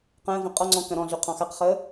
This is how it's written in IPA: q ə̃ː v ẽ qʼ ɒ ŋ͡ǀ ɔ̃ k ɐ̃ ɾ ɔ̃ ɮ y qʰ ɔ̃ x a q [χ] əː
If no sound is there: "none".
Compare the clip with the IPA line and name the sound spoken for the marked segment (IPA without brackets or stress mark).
χ